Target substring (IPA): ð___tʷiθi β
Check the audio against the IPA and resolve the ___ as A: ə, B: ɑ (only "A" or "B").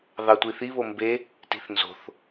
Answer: B